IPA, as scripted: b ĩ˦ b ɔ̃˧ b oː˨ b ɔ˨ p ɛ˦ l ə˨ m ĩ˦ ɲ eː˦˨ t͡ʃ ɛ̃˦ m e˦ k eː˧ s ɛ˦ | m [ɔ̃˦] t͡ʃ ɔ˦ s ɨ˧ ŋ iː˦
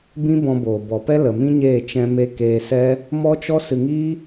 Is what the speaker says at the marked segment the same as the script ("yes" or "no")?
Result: no